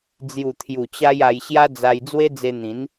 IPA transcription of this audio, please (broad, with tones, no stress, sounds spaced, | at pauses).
d͡z j u˨˩ t̪ʰ j u˨˩ t͡ɕ a˧ j a˧ j ɕ j a˦ d͡z a˧ j d͡z w e˦ d͡z e˧ n̪ ĩ˨˦ n